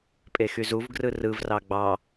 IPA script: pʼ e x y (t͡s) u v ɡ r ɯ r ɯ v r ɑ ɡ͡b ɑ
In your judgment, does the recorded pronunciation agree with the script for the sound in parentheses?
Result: no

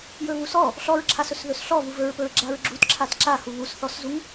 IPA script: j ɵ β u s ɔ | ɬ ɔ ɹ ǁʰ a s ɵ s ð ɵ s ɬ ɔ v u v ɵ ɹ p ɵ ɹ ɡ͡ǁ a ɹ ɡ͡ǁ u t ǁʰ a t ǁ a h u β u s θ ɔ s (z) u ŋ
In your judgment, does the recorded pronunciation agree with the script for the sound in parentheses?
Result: yes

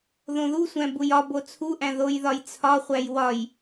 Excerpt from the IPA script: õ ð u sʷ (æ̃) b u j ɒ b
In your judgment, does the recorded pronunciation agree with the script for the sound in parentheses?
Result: yes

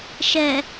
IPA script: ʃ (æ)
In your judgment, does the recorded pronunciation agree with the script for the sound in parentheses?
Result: no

